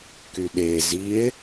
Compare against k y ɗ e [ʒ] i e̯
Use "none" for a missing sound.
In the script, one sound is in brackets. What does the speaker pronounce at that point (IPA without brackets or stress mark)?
z